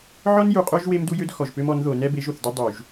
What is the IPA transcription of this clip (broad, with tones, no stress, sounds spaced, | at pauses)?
ʕ ɔ˦ n j u˨ qʼ ø˦ ʒ w e˦ m d u˦ j ø˦ d x ɔ˨ ʒ p ø˦ m ɔ˨˦ n ð o˨ n ɛ˦ b e˨˦ ʒ o˨ θ d ø˦ dˤ u˨ ʒ